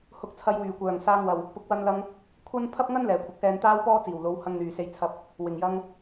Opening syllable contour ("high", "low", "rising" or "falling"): rising